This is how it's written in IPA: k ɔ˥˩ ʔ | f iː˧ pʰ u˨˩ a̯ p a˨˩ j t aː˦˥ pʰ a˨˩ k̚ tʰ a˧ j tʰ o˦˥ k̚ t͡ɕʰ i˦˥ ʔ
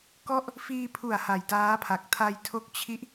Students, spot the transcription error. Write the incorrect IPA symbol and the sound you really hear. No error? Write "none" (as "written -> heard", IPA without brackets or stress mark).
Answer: p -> h